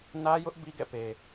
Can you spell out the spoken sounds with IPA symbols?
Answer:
n ä˦ j ʊ˦ ʔ b i˦ ɡ ɛ̰˦˨ p e˨

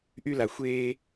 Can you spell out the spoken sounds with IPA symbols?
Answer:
ʔ y˧ l a˨ xʷ eː˧

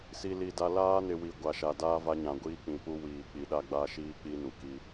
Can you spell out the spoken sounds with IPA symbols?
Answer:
s i˨ l i˨ d a˨ l aː˦ n ɪ˨ w i˨ ɡʷ a˨ ʃ a˨ d aː˦ v a˦ ɲ ã˨ ɡʷ iː˦ k͡p ĩ˨ p u˦ w iː˨ k͡p i˨ ɗ a˦ ɡ͡b a˦ ʃ iː˦ k͡p i˦ n u˨ k i˦

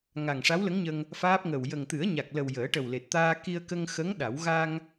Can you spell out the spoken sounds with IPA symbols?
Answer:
ŋ a˨˩ ŋ ʂ a˧˥ w l ə˧˥ ŋ ɲ ə˧ ŋ | f aː˦˥ p̚ ŋ ə˨˩ w j ə˨˩ ŋ t̪ ɨ˨˩˦ ə̯ ɲ a˨˩ k̚ l ə˨˩ w j əː˨˩˦ ʈ ə˨˩ w l e˨˩ t̚ t̪ aː˧ k i˧ ə̯ k ə˧ ŋ x ə˧˥ ŋ ɗ a˨˩˦ w ɣ a˧ ŋ

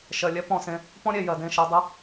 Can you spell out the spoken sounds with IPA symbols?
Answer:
ʃ ɜ˨ lʲ ɛ˦ p ɔ̃˦˨ s ẽ˦ | p ɔ̃˦ ɾʲ e˨ j ɜ˨ d ẽ˦˨ ʃ ɜ˧ dˤ i˧

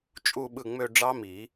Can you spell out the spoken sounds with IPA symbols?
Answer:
t͡ʃʼ u˥˧ ɓ ɯ˥˩ ŋ͡m ø˥˧ ɖ͡ʐ ɑ˦˥ m i˨˩˦

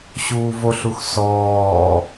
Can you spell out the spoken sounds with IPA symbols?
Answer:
ɕ uː v o ɬ u x s ɔː

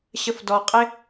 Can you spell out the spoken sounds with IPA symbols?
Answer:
ɕ ə f d ɔ qʼ ɪ

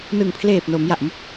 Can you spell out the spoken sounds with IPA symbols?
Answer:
n ɯ˨˩ ŋ pʰ l eː˨˩ p̚ n o˩˦ m j a˨˩ ʔ m u˦˥ k̚

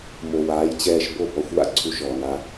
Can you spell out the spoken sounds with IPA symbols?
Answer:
m o˨ w aː˨˦ j t͡ɕ ɛː˧ ʃ b o˦˨ b ɔ˧ xʷ w a̰˧ ǀʰ u˧ ʃ ɔː˨ n a˧

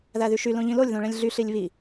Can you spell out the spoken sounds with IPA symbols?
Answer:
ð æ ð y ʃ y l õ ʎ ĩ l o lʲ ð õ ɭ ẽ lʲ ɮ y ɬ i lʲ β i

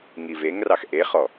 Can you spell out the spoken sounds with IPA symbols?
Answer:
ŋ i v e ŋ r ɑ x ʔ e χ ɔ

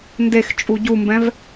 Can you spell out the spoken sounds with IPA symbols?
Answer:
n d e x t͡ʃʼ u ɟ u m b ɛ̃ v

